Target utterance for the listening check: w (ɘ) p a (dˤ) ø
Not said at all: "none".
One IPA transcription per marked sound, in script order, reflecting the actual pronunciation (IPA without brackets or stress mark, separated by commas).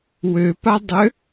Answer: ø, dˤ